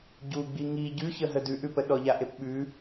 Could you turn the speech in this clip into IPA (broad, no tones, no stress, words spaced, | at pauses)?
ɟuɡ͡bi ŋi ɟʉçəɦə dʉʔʉpə ɗɔʎaʔepɓʉ